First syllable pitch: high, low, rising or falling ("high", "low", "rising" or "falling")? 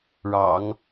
low